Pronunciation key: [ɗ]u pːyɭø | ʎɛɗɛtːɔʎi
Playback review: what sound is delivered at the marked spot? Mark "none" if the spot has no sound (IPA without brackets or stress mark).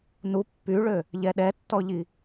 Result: n